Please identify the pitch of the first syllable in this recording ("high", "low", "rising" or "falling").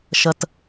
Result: low